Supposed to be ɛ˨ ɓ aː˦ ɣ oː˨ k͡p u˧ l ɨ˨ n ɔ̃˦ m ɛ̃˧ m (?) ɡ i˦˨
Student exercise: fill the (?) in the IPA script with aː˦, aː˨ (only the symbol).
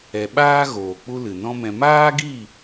aː˦